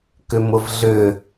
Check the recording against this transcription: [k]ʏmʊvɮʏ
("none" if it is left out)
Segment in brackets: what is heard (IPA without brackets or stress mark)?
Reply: k